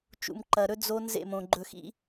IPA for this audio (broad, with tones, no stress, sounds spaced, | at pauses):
t͡ʃ ṵ˨ m ǃ ɐ˨ ɾ ɵ˦ d͡z o˦ n z ḛ˦˨ m õ˨ ɡ͡ǃ ɵ˨ x ḭ˦